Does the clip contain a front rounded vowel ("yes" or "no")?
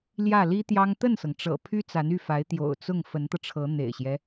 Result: yes